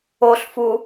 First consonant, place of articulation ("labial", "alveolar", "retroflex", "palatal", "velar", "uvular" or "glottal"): alveolar